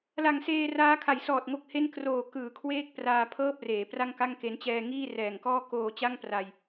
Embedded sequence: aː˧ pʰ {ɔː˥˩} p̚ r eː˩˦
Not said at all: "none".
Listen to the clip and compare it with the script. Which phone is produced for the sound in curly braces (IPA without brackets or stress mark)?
ɤː˥˩